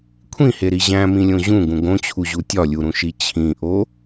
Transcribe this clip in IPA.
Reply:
kʷʰ ĩ h e ɾ i ʑ æ̃ m ĩ lʲ õ ʑ ũ ɡ ũ ɡ õ t͡ɕʰ u ʑ u tʲ ɒ lʲ u ɾ ũ ʃ i t͡ɕʰ ĩ ʔ o

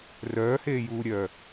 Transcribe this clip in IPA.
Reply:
r œː h eː j uː ɾʲ œː

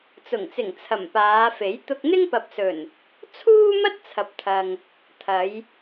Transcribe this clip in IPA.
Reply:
t͡s ʊ˨˩ ŋ t͡s ɪ˨˩ ŋ t͡sʰ ɐ˨˩ m p aː˨˧ f e˨˥ j t̪ ʊ˧ k̚ n̪ ɪ˥ ŋ p ɐ˨ p̚ s ɵ˨˩ n | t͡sʰ uː˥ m ɐ˥ t̚ t͡sʰ ɐ˨ p̚ t̪ʰ ɐ˨ ŋ | t̪ʰ ɐ˨˧ j

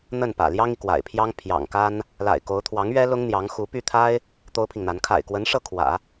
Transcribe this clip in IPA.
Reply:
n̪ ə˥˩ n p ä̰˨˩ l j ɑ˥ ŋ i˨ k w a̰˨˩ ɪ̯ pʰ j ɑ˥ ŋ pʰ j ɑ̰˨˩ ŋ k a˥ n | l a̰˨˩ ɪ̯ k o˧˥ ʊ̯ t̪ʰ w ɑ˧˥ ŋ ɥ ɛ˥ l ʊ˥ ŋ n̪ j ɑ˧˥ ŋ x u˧˥ p y˥˩ t̪ʰ a˥ ɪ̯ | t̪ o˥ ʊ̯ pʰ i˨ ŋ n̪ a˧˥ n kʰ a̰˨˩ ɪ̯ k w ə˧˥ n ʂ ɤ˥˩ kʰ w ä̰˨˩˦

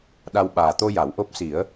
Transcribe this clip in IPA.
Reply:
ɗ a˧ w ɓ aː˨˩ t̪ o˧ j a˨˩˦ w ʔ o˦˥ p̚ s i˨˩˦ ə̯

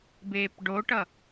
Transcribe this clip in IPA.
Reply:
b eː p ɖ o ʈ ʌ

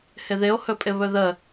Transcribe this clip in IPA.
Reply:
h ɪ ð ɪ o̯ h ɵ pʼ ɪ β ɵ ð ə

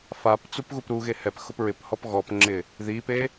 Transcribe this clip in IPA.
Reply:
f a p t͡s u p ɣ u p ɾ u ɣ e h ɛ p x ʊ p ɹ ɪ p h ɔ p ɣ ɔ p ŋ͡ǁ ɪ | ð i p e

